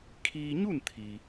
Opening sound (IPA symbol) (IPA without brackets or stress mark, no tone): kʰ